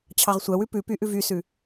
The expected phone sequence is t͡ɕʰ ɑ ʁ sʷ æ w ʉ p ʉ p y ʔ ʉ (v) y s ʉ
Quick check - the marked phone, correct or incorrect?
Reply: correct